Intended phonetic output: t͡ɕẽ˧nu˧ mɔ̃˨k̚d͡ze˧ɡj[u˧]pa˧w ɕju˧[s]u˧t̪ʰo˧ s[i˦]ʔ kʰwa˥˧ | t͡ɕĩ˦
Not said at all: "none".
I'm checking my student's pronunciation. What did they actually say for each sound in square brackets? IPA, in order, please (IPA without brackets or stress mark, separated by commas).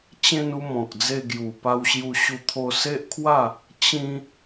u˨˩, ɕ, e˦